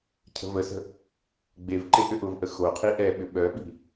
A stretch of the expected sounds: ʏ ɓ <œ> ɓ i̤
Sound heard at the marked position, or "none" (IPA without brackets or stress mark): œ